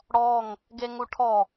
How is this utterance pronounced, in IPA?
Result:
ɽ ɔ ŋ | ɡ e ŋ u ʈʰ ɔ

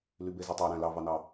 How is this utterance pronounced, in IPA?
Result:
l y b e z e tˤ ɑ ɾ æ̃ l ɑ v ɑ n ɑ

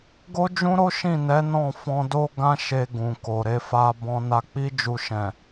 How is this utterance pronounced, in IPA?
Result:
ɡ o˦ d͡ʒ ũ˦ ɾ o˦ ʃ ĩ˦˨ n ɛ˨˦ n ɔ̃˦˨ f ɔ̃˧ d o˦ ɡ ã˧ ʃ e˨ ɡ ũ˨ k o˨ ɾ e˨˦ f a˧ b ɔ̃˧ n a˧ k͡p i˦ d͡ʒ u˧ ʃ ɛ̃˨

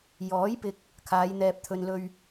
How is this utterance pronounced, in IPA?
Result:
j ɔː˨˥ j p ɪ˨ k̚ | kʰ aː˨˧ j n̪ ɛː˨ p̚ t̪ʰ ɵ˨ n l ɵ˧ ɥ

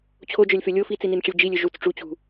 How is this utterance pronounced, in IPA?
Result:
t͡ɕʰ o d͡ʒ œ lʲ f ø lʲ o f i t͡s i n i n ʈ͡ʂ ə lʲ d͡ʒ i lʲ ø ʒ u t͡s ʈ͡ʂ u t͡ɕ ṳ

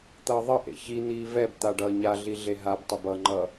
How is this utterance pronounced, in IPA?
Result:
t̪ ʌː ðˤ ʌ ʔ ḛ ç i n̪ iː v ɛ b t̪ a ɖ ʌː ɲ a ɮ i ɮ e ɦ a b tˤ ɯ b ʌ ŋ͡ǃ ʌ

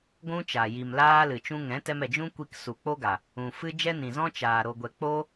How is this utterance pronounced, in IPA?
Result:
ɡʷ ũ˦ t͡ʃ a˨ j i˨ m l aː˧ l ɨ˨ t͡ʃ ũ˧ ŋ ɛ̃˨˦ t ɛ˧ m ɛ˨ d͡ʒ ũ˦ kʷ i˧ k s u˨ k͡p o˦ ɡ a˨ | ũ˨ f ɨ˦ d͡ʒ ɛ˦ n ĩ˨ z ɔ̃˦ t͡ʃ aː˨ ɾ o˨ ɡʷ ɛ˨ k͡p o˦

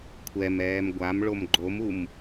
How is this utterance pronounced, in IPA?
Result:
kʷʰ ɛ m ɛː m ɡʷ a m ɭ o m ɡ͡ǃ o m u m

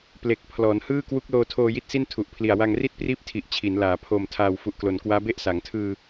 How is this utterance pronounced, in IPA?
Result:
p l e˨˩ k̚ pʰ l ɔː˩˦ n h ɯː˥˩ k w u˦˥ k̚ l oː˧ tʰ oː˧ j i˥˩ t̚ s i˥˩ n tʰ u˨˩ ʔ pʰ l i˨˩ a̯ w a˧ ŋ r i˥˩ t̚ p r iː˦˥ p̚ tʰ i˨˩ ʔ t͡ɕʰ i˩˦ n l aː˩˦ pʰ o˨˩ m tʰ aː˨˩ w f u˨˩ ʔ k l o˨˩ n k w aː˦˥ b e˦˥ ʔ s a˩˦ ŋ tʰ ɯː˧

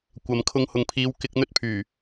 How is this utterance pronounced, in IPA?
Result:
kʷ ɐ˨ m kʰ ʊ˧ ŋ h ʊ˨ ŋ pʰ iː˨˧ w k ɪ˧ k̚ n̪ ɵ˥ t̚ pʰ yː˨˩

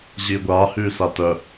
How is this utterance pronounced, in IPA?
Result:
ʑ iː ɡʷ aː h yː s a t œ

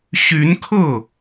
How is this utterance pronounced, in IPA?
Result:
ɕ y˧˥ n kʰ ɤ˥˩

